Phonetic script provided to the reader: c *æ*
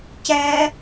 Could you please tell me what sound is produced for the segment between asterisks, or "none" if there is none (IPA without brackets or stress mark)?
æ